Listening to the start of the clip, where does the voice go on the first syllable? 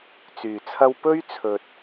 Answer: low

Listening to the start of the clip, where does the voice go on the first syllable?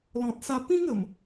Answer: low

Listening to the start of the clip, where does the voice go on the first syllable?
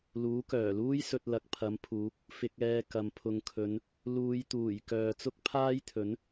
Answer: rising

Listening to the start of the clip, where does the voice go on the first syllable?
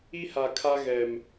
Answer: high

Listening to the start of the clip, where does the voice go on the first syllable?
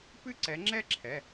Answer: falling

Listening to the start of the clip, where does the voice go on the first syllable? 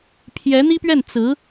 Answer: rising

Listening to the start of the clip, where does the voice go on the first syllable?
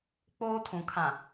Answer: high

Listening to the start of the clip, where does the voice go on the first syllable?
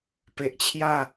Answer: low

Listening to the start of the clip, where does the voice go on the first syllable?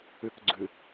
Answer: low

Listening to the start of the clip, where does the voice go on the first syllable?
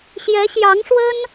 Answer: rising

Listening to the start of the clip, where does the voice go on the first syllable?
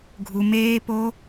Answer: high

